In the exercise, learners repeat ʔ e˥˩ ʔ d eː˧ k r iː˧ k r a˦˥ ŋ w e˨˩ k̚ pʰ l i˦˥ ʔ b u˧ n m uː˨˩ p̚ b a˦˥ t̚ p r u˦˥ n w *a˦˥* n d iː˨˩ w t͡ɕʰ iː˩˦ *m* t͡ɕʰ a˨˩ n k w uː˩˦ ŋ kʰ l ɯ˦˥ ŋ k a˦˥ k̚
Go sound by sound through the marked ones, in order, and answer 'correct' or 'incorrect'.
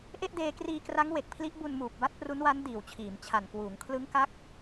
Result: correct, correct

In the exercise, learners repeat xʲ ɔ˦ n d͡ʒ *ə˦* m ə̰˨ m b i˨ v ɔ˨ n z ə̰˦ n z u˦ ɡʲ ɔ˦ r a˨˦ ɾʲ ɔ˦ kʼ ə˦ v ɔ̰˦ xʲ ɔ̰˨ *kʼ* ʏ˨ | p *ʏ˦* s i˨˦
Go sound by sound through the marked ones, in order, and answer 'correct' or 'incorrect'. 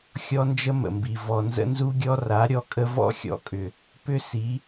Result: correct, correct, correct

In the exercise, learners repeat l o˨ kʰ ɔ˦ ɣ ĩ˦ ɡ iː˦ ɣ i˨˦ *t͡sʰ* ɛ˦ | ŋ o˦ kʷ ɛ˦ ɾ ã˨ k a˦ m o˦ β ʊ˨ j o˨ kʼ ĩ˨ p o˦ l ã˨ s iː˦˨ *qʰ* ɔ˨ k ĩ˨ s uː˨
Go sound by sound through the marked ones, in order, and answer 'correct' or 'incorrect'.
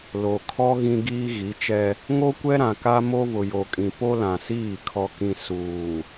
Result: incorrect: t͡ʃ, incorrect: kʰ

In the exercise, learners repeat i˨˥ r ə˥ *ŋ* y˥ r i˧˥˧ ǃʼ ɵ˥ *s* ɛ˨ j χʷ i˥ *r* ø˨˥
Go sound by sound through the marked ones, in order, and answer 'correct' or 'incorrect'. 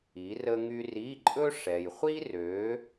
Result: correct, incorrect: ʂ, correct

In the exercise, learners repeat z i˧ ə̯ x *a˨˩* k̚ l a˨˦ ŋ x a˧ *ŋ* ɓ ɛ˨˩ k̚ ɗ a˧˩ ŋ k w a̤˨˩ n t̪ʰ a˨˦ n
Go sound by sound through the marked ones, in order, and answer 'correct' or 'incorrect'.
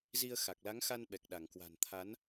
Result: correct, incorrect: n

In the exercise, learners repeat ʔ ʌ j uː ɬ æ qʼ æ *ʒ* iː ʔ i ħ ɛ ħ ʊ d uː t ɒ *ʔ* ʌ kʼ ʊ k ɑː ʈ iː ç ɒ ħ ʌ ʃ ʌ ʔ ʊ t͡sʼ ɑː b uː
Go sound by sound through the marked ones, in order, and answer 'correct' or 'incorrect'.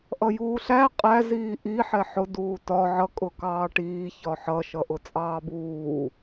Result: incorrect: z, incorrect: ʕ

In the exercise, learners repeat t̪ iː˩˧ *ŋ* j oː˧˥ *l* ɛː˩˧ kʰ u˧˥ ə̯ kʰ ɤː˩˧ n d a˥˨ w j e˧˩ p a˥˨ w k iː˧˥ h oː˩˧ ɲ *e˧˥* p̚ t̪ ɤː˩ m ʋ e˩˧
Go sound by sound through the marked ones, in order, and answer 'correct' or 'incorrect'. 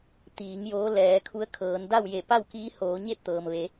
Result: correct, correct, incorrect: e˥˨

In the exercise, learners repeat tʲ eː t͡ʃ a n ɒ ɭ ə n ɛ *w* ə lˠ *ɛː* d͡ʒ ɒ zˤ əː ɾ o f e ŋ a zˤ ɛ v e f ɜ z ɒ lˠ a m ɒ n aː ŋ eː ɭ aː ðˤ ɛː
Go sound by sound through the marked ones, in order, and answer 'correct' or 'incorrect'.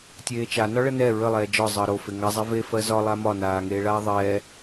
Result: incorrect: ɹ, correct

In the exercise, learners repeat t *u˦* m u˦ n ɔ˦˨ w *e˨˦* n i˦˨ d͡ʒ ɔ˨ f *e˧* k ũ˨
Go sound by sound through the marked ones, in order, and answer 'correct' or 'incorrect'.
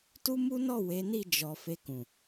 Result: correct, correct, correct

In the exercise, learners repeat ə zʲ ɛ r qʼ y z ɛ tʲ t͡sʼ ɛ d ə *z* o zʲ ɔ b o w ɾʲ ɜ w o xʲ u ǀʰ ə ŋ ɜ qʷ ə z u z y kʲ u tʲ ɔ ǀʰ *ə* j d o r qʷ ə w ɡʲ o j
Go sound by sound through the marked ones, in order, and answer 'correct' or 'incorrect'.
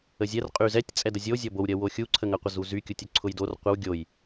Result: incorrect: zʲ, incorrect: ʊ

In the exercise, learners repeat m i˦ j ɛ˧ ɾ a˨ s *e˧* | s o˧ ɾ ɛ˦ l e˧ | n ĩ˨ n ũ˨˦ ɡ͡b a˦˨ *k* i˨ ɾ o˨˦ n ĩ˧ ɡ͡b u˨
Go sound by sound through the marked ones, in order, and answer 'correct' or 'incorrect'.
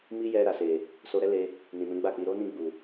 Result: incorrect: e˨, incorrect: k͡p

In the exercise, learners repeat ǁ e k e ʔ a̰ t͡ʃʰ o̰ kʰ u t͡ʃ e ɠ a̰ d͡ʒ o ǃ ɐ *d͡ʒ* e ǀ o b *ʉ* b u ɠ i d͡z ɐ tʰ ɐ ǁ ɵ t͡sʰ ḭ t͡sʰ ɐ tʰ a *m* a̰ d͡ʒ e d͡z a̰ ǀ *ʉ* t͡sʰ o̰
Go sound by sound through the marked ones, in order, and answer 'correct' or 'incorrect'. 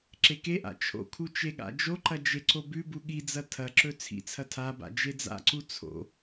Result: correct, correct, incorrect: b, incorrect: u

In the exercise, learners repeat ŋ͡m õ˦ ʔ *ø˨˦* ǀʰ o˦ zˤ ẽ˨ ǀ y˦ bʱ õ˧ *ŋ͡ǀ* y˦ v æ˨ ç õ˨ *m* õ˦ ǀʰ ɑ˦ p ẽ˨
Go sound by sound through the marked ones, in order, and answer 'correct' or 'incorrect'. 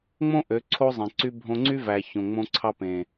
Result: correct, correct, incorrect: ŋ͡m

